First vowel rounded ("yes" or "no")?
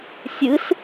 no